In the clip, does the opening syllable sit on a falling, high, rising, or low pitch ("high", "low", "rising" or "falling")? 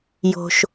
low